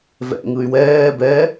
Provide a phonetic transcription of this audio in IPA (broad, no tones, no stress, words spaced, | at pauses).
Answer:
vɛ̰ŋɯy̯ wɛː bɛ